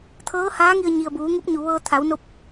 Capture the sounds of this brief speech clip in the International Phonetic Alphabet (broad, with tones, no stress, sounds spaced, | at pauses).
t̪ʰ ɤː˧˥ h aː˧˥ ŋ i˧ ə̯ ɲ i˩ ə̯ b uː˩˧ ŋ u˧˥ p̚ ɲ u˩ ʋ ɤː˧ t̪ʰ a˩˧ w n o˧˥ p̚